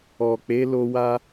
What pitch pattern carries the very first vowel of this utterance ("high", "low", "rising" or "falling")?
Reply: low